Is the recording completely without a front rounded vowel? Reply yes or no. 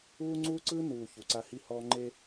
yes